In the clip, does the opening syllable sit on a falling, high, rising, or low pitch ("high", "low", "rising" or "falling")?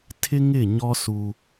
high